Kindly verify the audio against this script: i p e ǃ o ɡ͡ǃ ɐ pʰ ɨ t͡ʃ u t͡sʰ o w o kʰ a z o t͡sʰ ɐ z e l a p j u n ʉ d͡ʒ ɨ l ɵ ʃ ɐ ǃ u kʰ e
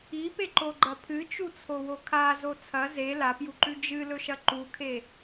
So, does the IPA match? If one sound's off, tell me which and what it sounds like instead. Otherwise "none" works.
n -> ǃ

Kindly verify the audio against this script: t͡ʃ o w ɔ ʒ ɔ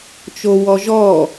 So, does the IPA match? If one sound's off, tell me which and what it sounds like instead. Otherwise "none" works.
none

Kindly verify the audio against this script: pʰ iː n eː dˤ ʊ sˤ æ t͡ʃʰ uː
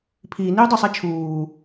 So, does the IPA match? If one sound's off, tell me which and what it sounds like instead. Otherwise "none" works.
eː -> iː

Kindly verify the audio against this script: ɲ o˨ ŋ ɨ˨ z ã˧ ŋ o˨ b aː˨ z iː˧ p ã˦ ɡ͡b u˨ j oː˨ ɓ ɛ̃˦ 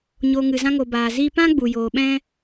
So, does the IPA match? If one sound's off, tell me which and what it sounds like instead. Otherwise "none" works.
none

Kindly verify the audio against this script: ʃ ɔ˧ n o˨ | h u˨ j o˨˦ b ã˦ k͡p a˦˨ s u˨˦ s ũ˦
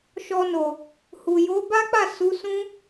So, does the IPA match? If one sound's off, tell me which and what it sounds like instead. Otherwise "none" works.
ã˦ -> a˦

